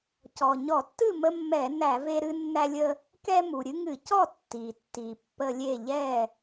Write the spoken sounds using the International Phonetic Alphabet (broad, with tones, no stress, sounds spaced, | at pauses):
c ɔ˩ ɲ ɔ˧˩˧ tː ɨ˥˨ m ə˦ mː ɛ˧˩˧ n æ˧˩˧ v e˦ ɾ ɨ˦ nː æ˦ lʲ ə˦ | k ɛ˦ m u˩ ɾʲ ɨ˦ ŋ ɨ˧˩˧ c ɔ˥˨ tː i˩ tː i˩ pː ə˦ lʲ e˥˨ ʎ ɛ˥˨